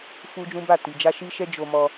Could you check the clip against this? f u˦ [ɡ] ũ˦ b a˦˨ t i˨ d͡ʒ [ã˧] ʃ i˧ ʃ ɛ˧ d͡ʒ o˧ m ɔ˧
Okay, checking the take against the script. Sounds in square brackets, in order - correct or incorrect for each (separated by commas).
incorrect, incorrect